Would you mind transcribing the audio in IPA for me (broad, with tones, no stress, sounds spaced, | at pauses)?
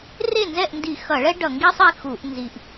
r e˥˩ n z ɛ˥˩ ʔ n d i˧˩˧ x ʌ˧˩˧ ɭ ɛ˥ ɖ ʌ˧˩˧ ŋ ɡ i˥ sˤ i˥˩ x u˧˩˧ ʔ n z i˧˩˧ ʔ